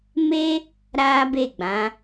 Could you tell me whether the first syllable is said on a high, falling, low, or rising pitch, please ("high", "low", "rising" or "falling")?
high